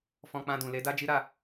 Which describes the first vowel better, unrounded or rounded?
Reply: rounded